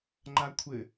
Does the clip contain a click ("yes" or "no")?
yes